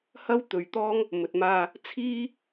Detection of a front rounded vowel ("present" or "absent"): absent